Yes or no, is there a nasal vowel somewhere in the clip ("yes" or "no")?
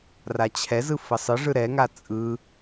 no